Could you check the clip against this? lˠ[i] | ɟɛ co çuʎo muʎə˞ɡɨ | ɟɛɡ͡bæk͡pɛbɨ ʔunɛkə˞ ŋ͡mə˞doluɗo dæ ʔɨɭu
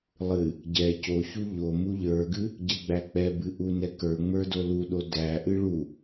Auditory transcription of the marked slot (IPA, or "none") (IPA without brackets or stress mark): ɨ